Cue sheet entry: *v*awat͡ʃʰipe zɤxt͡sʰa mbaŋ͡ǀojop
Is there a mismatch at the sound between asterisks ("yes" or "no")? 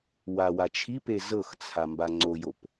yes